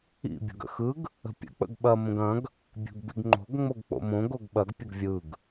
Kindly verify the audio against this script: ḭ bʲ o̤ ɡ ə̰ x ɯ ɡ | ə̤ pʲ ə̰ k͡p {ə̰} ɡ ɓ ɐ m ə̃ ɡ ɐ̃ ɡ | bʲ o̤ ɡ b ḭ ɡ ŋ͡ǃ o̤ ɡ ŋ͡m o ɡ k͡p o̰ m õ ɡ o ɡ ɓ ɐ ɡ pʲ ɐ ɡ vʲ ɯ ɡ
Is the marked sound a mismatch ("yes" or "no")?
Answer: no